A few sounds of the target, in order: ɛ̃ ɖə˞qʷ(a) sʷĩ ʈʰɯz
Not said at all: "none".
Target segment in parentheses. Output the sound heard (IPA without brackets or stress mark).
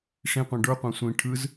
ã